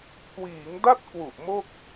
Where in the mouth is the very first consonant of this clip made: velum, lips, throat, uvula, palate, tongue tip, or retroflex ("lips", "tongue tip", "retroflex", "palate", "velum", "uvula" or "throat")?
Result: velum